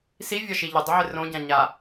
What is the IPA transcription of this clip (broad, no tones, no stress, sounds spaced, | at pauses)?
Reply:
s i vʲ ɒ ʃ i ʎ ɪ dˤ ə ʕ ɪ r õ ɟ ã ɲ a